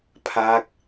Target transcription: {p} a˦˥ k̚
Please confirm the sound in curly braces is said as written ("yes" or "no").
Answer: no